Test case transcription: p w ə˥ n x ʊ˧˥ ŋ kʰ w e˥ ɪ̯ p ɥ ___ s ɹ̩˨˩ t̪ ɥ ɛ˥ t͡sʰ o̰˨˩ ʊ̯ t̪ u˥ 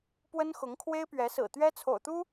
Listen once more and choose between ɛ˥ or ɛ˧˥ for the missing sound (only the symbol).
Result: ɛ˧˥